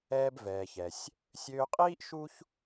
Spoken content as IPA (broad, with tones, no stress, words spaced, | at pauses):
ɛː˧bvɛː˩çɛ˩sʲ | sʲøː˧qʼiː˥ʔ ʃu˥ç